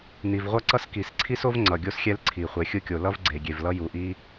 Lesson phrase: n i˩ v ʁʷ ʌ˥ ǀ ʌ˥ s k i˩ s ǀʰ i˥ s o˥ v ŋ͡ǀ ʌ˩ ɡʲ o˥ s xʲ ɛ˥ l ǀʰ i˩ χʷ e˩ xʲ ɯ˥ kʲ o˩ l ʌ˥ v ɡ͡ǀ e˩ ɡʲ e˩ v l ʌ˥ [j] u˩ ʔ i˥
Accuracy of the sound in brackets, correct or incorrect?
correct